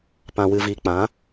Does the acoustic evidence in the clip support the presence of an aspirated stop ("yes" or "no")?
no